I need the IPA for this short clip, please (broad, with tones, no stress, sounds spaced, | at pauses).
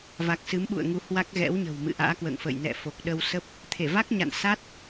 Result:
v a˨˩ k̚ s ɨ˨˦ m ɓ ṵ˧˨ ə̯ ŋ u˧ h w a˦˥ k̚ ɣ ɛ̰˧˥ w ɲ ə̤˨˩ w m ɨ̰˧˨ ʔ a̰ː˧˥ k w ə̰ː˧˨ ŋ f ə̰ː˧˨ j n ɛ̰˧˨ f o˨˩ k̚ ɗ ə˧ w s ə˦˥ p̚ | t̪ʰ e˧˩ v a˦˥ k̚ ɲ a̰˧˨ n s a˦˥ t̚